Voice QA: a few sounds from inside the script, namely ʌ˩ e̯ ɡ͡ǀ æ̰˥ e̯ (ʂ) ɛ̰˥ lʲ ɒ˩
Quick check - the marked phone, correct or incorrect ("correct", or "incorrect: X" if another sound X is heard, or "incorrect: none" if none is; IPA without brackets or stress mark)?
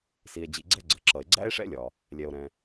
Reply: correct